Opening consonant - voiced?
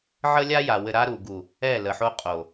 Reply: yes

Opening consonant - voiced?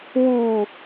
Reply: yes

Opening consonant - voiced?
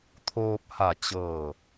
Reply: no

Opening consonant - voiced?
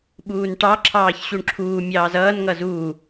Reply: yes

